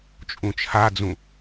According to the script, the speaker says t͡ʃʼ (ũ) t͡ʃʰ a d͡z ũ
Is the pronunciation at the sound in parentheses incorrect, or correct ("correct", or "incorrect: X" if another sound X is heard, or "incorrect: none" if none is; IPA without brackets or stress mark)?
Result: correct